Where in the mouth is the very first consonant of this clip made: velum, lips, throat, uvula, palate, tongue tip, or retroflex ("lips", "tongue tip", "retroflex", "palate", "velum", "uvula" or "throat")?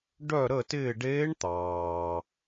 retroflex